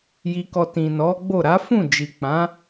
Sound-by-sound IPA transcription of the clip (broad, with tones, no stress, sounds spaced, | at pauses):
j i˧ k ɔ˧ t ĩ˨ n ɔ˨˦ ɡ͡b o˦˨ ɾ a˨˦ f ũ˦˨ d͡ʒ i˨ k͡p ã˨˦